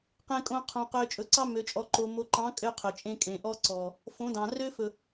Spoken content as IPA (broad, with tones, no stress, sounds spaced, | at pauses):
q ẽ˨ kʼ õ˨ qʰ õ˨ q ø˨ t͡ʃʼ ɵ˨ ǀ ɑ˦ m ø˨ t͡ʃʼ ɔ˨ ǃ o˨ m o˨ ǃ ɑ̃˨˦ kʼ ø˦ qʰ ɵ˨ t͡ʃʼ ẽ˦ kʼ ẽ˨ ʔ ɔ˦ ǀ ɔ˨ | f õ˨˦ d ɑ̃˨ r ø˦ f ɵ˨